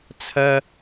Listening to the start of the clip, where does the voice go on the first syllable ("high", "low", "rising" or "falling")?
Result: high